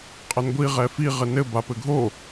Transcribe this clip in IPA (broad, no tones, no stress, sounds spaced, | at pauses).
qʼ ɐ n ɡʷ i ʁ ɛ f i ʁ ɘ n ɘ b a p ɘ ɡʱ o